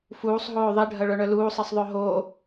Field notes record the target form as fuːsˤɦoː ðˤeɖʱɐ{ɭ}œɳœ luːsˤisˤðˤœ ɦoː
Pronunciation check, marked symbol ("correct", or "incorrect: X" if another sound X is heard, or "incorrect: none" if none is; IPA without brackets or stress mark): correct